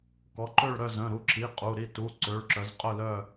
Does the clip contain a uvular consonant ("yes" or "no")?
yes